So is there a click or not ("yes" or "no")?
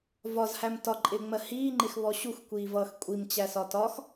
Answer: yes